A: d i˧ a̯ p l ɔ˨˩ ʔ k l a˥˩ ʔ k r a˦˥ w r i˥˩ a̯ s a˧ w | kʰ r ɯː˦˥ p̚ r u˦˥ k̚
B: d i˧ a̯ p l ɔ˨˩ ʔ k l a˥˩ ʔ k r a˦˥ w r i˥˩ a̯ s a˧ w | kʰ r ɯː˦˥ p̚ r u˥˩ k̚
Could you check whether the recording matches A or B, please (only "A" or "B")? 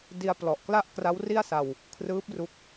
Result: A